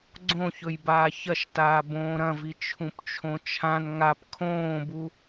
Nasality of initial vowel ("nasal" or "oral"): nasal